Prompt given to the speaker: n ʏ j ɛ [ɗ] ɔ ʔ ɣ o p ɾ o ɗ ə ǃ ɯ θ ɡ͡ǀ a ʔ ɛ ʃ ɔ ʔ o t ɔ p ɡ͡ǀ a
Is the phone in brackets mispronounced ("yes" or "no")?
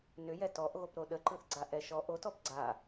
yes